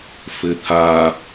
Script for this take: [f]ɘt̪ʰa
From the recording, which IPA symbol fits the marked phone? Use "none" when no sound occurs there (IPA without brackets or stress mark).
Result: f